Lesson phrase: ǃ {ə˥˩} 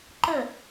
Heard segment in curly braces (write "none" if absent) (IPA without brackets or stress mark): ə˥˩